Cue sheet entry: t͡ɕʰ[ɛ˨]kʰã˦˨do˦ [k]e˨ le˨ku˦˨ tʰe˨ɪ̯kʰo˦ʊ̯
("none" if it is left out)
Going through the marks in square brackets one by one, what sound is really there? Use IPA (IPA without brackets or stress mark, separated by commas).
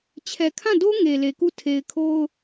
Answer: ɛ˨, ŋ